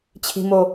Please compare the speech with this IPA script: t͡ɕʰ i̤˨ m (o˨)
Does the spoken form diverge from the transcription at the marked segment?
no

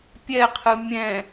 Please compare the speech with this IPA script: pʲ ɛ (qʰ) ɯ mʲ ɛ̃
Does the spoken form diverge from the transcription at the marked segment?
no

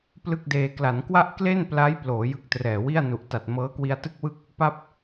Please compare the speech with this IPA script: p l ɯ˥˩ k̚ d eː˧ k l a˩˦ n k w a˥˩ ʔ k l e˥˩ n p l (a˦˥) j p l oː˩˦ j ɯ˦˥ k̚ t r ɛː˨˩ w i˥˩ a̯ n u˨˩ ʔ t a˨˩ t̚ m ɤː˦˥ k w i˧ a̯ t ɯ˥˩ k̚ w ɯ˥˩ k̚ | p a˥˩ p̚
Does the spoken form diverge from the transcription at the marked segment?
no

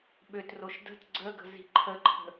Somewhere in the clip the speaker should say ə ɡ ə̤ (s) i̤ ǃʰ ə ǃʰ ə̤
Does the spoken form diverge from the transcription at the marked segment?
yes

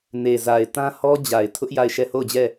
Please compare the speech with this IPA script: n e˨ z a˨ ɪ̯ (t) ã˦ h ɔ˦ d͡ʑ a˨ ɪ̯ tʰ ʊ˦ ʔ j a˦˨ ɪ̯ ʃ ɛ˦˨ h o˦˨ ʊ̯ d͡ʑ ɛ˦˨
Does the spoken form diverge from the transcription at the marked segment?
no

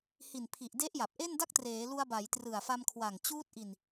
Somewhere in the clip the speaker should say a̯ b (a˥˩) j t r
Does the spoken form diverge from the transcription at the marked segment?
yes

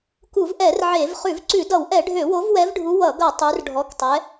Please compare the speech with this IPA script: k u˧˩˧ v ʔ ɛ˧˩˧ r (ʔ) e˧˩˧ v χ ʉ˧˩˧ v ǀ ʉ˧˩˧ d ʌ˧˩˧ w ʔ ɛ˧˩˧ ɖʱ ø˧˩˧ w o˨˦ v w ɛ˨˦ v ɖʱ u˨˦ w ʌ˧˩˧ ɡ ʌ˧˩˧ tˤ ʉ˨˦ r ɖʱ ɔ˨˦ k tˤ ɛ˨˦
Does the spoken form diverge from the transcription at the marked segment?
yes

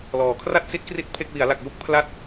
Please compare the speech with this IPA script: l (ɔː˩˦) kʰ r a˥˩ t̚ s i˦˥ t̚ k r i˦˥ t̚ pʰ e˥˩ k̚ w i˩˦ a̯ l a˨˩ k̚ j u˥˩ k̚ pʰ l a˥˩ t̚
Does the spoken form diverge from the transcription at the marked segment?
no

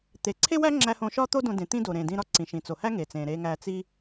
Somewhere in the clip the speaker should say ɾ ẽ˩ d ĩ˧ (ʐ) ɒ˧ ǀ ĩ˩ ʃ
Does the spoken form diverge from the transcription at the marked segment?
yes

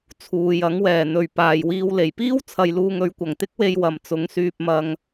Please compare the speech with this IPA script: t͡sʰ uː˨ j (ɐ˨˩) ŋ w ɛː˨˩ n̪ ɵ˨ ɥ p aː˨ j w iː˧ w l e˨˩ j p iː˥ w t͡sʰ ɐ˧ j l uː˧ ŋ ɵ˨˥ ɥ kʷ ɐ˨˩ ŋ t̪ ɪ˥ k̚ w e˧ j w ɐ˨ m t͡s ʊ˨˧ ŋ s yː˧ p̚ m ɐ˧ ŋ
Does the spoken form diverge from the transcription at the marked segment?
yes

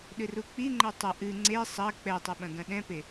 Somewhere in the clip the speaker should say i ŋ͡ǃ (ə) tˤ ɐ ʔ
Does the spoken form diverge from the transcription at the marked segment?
yes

